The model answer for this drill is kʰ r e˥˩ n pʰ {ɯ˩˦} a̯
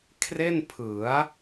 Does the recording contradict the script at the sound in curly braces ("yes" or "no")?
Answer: no